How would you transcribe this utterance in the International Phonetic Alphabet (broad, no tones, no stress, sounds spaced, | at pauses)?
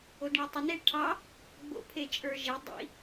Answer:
o d ɳ ɛ tˤ ə n e ʈʰ ɑ | ɡ͡b o̰ pʰ e t͡ʃʼ ə˞ ʒ e dˤ ḭ